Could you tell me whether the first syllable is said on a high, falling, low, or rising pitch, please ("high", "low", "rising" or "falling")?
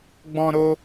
high